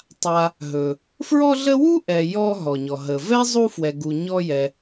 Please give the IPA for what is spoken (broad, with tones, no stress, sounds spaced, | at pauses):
tˤ a˨ | ɦ ɵ˩ | f ɹ ɔ˦ ɮ ə˦ w u˥ ʔ ɛ˨ j ɔ˦ ɦ ɔ˩ ɲ ɔ˩ ɦ ə˩ v ɛ˥ zˤ u˦ f w ɛ˨ ɡ u˨ ɲ ɔ˦ j ɛ˨